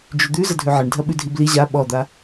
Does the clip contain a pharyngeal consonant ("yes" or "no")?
yes